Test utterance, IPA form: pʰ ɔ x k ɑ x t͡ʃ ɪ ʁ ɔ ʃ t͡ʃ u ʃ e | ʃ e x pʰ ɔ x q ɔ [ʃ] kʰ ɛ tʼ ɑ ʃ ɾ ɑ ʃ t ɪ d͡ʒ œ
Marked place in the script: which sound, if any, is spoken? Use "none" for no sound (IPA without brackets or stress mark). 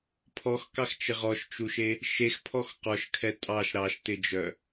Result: ʃ